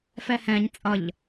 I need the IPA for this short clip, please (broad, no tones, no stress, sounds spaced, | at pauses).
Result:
f ɛ h ɛ̃ ɲ t͡sʼ ʌ ʎ